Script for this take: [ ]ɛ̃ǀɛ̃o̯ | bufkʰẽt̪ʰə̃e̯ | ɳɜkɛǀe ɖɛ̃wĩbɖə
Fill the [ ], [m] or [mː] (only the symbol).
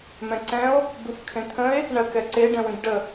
m